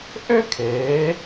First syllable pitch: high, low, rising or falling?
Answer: high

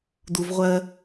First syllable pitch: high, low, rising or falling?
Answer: high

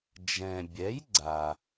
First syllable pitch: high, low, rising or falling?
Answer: low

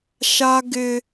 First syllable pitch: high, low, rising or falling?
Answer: high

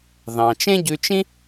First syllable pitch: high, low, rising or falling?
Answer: low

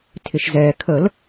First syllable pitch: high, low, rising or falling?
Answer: low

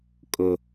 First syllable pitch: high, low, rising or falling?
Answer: high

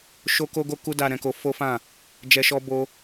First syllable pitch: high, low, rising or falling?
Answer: high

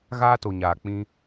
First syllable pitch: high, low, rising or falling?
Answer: high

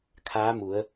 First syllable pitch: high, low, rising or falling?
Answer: rising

